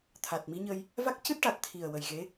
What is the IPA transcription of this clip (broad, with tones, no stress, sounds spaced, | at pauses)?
t̪ʰ a˨˩ t̚ m i˧˥ ɲ ə˧ j | v a˦˥ k̚ c ɨ˦˥ t̚ ʈ a˨˩ t̚ t̪ʰ i˨˩ ə̯ w ə˨˩ j ɣ e˧˥